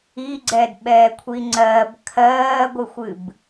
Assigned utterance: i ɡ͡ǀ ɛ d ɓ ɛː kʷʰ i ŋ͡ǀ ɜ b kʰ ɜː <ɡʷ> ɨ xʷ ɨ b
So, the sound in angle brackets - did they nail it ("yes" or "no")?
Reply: yes